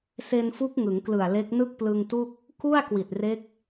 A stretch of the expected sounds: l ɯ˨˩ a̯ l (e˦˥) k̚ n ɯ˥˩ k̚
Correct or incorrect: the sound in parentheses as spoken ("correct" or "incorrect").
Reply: correct